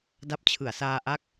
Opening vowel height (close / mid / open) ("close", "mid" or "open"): open